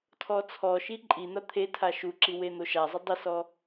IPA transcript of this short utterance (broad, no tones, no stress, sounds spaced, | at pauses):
tʰ ɔ t͡sʰ ɔ ʃ i ǃʼ i n̪ a t̪ʰ e tʰ a ʃ u ǁ i w e n̪ o ʃ a zˤ ɪ dˤ ɪ s ɔ